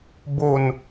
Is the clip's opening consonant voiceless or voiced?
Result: voiced